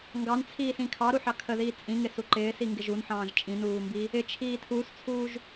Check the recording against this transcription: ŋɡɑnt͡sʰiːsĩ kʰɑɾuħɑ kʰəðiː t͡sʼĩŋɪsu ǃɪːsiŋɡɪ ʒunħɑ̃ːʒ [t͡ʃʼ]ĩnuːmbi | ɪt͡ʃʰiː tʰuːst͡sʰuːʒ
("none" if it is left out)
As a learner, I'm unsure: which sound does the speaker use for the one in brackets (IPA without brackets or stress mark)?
t͡ʃʼ